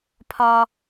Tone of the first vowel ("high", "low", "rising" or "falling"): high